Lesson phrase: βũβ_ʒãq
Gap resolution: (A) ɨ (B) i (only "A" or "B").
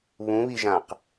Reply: B